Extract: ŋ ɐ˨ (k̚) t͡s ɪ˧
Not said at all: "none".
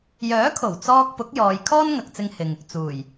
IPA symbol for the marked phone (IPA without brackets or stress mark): k̚